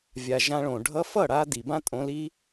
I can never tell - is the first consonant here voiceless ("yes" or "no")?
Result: no